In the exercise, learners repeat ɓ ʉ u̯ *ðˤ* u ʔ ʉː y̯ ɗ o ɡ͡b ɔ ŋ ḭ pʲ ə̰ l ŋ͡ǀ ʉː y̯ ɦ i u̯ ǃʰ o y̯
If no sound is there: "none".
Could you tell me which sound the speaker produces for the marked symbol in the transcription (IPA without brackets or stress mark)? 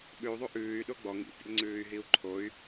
ðˤ